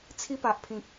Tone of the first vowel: high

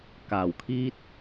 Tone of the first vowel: low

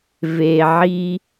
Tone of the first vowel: low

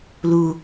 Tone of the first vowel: low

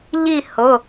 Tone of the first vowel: falling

